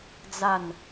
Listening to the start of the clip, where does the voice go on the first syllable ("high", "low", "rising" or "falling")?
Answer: falling